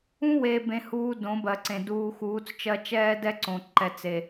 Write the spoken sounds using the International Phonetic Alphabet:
ũ˦weː˨bẽ˨huː˨ dõ˨˦bɜ˨ǀẽ˨ duː˨ xuː˨˦t͡st͡ʃɜ˦ t͡ʃɛː˦dɛ˦ǀõ˨ ǃɛ˨ t͡se˨

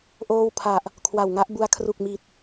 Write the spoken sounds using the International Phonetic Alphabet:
ʔoː˥˩w pʰa˨˩ʔ | kʰwa˨˩wŋa˦˥ʔbu˧a̯ kʰru˨˩k̚mi˨˩t̚

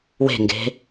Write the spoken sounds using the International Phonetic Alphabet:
we̤ŋɡe̤

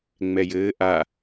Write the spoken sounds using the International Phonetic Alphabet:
ŋ͡mɛjɘː ʔa

